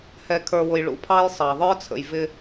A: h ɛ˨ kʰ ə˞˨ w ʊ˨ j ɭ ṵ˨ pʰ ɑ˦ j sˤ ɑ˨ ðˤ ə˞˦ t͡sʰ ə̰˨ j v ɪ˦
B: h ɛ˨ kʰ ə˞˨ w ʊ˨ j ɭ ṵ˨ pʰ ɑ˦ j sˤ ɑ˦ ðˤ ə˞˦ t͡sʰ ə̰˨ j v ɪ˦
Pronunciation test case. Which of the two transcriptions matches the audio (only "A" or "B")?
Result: A